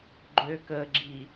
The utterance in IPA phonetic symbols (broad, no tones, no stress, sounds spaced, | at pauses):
ɡ͡ǃ ø k ə ɡ͡ǁ i